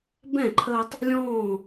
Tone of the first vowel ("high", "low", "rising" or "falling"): falling